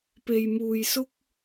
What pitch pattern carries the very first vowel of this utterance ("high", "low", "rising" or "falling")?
low